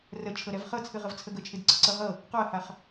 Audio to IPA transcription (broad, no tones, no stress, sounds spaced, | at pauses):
r ə t͡ʃʰ ɤ ɾ ɛ v χ ɤ t͡sʰ ɨ ʁ ə v t͡sʰ ə ɡ ə t͡ʃʰ ɨ d ǀ ə ǀ ɤ ʁ ɤ | q ɔ ɐ̯ h a χ